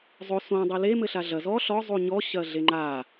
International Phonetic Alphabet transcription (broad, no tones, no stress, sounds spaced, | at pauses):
zˤ o s õ dˤ ɛ l e m ɘ ɬ a ɮ ɐ z ɔ ɬ ɔ zˤ u ɲ ɔ ɕ ɐ ɮ e ŋ͡ǃ a